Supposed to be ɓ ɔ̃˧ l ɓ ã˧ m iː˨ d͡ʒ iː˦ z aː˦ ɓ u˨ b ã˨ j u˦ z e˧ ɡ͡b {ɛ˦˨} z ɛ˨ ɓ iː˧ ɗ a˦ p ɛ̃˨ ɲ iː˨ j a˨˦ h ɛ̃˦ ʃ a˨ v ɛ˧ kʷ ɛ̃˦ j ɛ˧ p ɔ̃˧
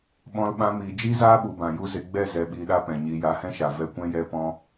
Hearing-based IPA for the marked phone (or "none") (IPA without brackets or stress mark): ɛ˦˨